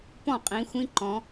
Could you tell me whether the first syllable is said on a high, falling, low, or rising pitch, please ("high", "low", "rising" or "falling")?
falling